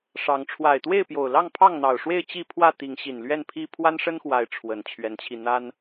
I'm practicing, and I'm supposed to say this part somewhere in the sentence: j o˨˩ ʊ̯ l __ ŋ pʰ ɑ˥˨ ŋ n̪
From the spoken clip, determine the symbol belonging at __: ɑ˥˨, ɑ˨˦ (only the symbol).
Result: ɑ˥˨